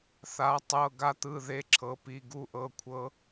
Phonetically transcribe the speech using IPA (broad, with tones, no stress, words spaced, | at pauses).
θa˧˥tˤɤ˧˥˧ɡa˥ t̪ɯ˧˥˧ðe˧˥˧ǁʰɤ˧˥pi˧˥˧ ɡu˥ʔɤ˧˥˧kʷʰɤ˥